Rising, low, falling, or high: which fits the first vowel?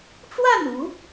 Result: falling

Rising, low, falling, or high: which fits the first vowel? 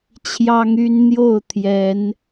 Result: high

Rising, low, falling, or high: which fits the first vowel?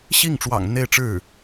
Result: falling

